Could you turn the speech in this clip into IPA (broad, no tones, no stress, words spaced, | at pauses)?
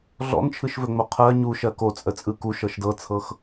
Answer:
ɮɔ̰nt͡ʃʰɯʃvɵŋ͡mo qʰɜ ɲu ʃɜkot͡sʼə t͡sʼɯku ʃɤʃdɤt͡sʰɤx